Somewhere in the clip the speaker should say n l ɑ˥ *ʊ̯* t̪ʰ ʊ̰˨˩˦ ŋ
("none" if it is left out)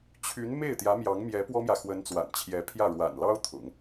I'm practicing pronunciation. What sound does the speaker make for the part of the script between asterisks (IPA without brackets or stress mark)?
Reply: ʊ̯